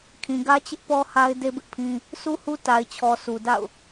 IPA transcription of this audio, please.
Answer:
kʰ ĩ˨ ɡ ä˦ t͡ɕ ɪ˦ ʔ p ɔ˦ h a˦ ɪ̯ d e˦ b ɪ˦ ʔ pʰ ĩ˦ | sʰ u˦ h u˦ t a˨ ɪ̯ t͡ɕʰ ɔ˨ sʰ u˨ d a̰˦˨ ʊ̯

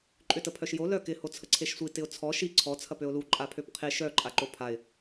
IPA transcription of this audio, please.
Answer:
ǃʼ ʏ t ə pʰ œ ʃ j o l œ k ɪ h o t͡sʰ ə ǀʰ e ʃ sʷ i t ɪ ʊ̯ t͡sʰ ɔ ʃ i ǀʰ ɔ t͡sʰ ɐ p ø ʊ̯ l u ǃʼ a pʰ ø p qʰ e ʃ œ ǃʼ a ǃ o pʰ a ɪ̯

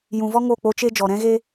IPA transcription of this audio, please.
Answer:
j ũ˨ v ɔ˦ ŋ o˦˨ k͡p o˧ t͡ʃ e˦ d͡ʒ ɔ˨ ɾ ɛ̃˦ ɣ e˦

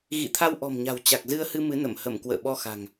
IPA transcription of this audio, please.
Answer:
ɣ ḭ˧˨ t̪ʰ a˧ w ʔ ɔ̤˨˩ m ɲ a̤˨˩ w t͡ɕ a˨˩ k̚ z ɨ˧ ə̯ h ɨ˧ m ɨ˨˦ n ə˧˩ m h ə˧˩ m k w ə̰ː˧˨ ɓ ɔ˧ x a̤˨˩ ŋ

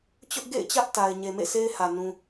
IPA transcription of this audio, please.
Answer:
t͡ɕ ʊ˦ ʔ ɡ ḛ˦˨ ɪ̯ t͡ɕ ä˦ ʔ t a˨ ɪ̯ ɲ e˨ m ḛ˦˨ s e˦ ɪ̯ h ä˨ n ũ˦

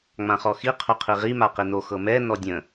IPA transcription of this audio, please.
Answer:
ŋ͡m ã χ ɔ x i qʰ o qʰ i ʁ i m a q i n o x ɤ m ɛ n ɔ dʲ ə̃

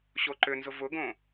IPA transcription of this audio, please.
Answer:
ɕ o ǃ ʏ n z ʊ v ʊ ɡ õ

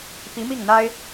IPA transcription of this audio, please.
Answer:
p i˧˥ m i˥˩ ŋ n̪ a˥ ɪ̯

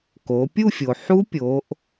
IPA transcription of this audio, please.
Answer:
k o˩˧ pʲ u˦˨ fʲ o˩ ħ u˦˥ pʲ o˩˧ ʔ

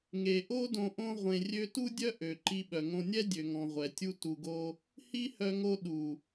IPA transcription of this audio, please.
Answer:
ŋ e˨ ʔ o˦ d õ˧ ʔ õ˧ ʁʷ ẽ˨ rʲ ø˧ t u˦ dʲ œ˦ ʔ ø˨ ǃ i˧ ɓ œ˨ ŋ õ˧ nʲ ɛ˦ dʲ ø˨ ŋ ɔ̃˨ ʁʷ ɛ˨ tʲ u˦ t u˧ ɡ o˦ | h i˦ h œ˧ ŋ o˧ ɗ u˨

